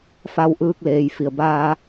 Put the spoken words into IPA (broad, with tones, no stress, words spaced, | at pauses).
fa˧wʔɯː˧k̚leː˩j fi˩ə̯baː˧